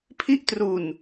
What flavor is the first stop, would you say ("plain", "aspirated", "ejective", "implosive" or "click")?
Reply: aspirated